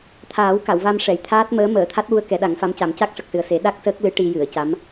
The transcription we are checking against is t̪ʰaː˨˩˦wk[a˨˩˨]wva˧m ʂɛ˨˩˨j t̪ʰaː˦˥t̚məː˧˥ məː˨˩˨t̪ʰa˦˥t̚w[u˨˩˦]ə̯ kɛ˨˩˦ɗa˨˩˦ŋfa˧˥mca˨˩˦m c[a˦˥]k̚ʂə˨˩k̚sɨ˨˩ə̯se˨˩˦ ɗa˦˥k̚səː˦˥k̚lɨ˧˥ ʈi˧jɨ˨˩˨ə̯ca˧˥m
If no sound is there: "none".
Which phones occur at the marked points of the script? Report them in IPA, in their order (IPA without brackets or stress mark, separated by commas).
a˨˩˨, u˧, a˦˥